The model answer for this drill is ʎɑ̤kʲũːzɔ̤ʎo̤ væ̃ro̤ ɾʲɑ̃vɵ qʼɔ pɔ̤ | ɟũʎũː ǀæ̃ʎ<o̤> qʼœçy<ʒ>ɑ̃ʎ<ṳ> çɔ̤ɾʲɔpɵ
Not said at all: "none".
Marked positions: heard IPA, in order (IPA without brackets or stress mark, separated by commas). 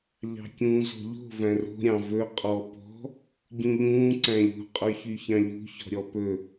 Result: o̤, ç, ṳ